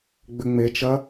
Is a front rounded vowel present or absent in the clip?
present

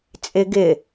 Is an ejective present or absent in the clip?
present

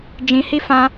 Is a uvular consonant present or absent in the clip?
absent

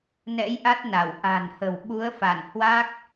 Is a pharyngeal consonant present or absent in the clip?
absent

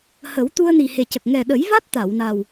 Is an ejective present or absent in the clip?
absent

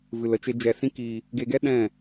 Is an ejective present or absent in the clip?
absent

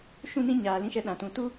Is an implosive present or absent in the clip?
present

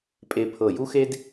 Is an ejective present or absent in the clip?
present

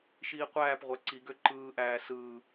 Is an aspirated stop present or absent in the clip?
absent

